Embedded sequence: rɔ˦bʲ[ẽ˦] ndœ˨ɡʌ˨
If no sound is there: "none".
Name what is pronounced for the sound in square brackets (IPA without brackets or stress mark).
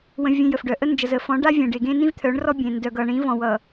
ẽ˨